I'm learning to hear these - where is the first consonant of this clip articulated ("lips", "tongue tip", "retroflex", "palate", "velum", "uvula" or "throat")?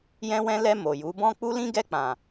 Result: palate